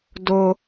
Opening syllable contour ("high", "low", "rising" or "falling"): low